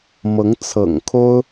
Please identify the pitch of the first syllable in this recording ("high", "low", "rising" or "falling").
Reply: rising